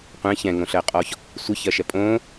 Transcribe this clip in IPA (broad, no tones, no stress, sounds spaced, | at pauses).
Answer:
qʷ ɛ̃ ç ɛ̃ ŋ õ ɬ ɜ qʼ ɔ ç | sʷ ɨ ç ɜ ʃ ɛ pʼ õ